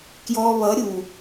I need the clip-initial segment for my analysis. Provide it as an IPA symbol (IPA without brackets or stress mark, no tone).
k